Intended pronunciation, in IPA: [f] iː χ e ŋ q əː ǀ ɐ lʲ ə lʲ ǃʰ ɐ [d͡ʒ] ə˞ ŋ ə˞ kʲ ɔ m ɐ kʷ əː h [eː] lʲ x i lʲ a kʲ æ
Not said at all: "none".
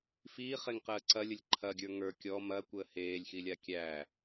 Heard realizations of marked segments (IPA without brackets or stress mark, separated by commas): f, ɡʲ, eː